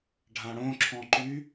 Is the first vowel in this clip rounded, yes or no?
no